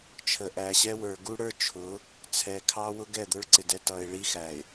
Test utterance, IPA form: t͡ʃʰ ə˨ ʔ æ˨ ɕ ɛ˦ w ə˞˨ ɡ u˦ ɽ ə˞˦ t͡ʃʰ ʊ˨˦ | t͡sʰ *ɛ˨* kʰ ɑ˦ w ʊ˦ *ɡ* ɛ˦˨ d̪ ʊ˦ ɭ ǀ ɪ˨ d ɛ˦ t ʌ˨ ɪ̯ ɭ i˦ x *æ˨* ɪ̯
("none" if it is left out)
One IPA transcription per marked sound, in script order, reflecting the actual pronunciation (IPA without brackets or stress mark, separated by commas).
ɛ˨, ɡ, æ˨